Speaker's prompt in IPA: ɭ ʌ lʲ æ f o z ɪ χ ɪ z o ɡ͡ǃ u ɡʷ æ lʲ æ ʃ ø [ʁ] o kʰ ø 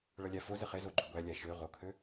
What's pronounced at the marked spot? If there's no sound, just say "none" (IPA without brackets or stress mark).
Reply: ʁ